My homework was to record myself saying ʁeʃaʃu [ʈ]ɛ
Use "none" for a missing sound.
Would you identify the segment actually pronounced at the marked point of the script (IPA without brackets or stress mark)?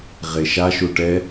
ʈ